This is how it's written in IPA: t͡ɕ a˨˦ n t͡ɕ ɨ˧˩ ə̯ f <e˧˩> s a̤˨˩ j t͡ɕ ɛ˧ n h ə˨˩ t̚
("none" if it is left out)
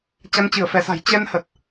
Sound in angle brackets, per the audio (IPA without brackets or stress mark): ɛ˧˩